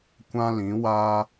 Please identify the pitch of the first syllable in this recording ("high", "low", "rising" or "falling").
high